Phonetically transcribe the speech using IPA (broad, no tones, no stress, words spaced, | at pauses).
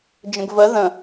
d͡ʒə̃ɡvə ðə̃